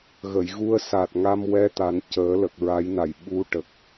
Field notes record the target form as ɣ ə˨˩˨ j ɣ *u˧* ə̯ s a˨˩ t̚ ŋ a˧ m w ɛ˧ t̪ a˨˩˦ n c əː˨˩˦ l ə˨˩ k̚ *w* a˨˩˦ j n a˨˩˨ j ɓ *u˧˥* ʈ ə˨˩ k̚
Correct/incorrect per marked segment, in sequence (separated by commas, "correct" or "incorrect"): correct, incorrect, correct